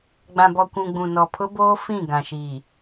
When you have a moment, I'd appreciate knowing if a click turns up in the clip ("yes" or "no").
no